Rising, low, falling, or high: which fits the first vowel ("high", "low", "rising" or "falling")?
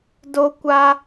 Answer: high